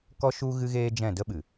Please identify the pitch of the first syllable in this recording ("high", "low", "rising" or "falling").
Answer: high